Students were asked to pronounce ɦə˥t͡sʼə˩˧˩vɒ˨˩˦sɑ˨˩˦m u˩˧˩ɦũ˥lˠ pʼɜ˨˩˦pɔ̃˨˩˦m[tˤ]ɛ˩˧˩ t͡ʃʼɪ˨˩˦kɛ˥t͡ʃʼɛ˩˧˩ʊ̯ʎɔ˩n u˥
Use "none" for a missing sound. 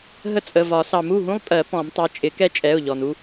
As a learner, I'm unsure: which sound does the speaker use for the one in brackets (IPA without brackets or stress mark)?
tˤ